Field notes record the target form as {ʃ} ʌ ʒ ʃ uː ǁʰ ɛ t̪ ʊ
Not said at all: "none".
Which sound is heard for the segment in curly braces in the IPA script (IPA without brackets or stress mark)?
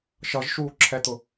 ʃ